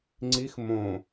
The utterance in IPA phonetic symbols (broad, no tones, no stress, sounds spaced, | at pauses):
ŋ͡ǀ i x m õ